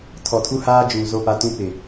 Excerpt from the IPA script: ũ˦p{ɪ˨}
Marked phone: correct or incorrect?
correct